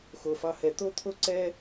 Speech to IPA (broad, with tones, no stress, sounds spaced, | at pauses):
x o˩ f ɑ˨ h ɛ˩ t̪ o˥ t̪ʰ o˦ ǀ ɛ˦